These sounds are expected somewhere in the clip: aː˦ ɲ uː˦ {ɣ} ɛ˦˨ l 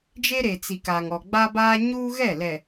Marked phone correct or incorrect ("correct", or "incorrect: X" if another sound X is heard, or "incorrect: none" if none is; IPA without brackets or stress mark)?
correct